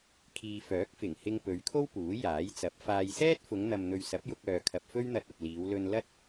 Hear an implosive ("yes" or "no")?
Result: no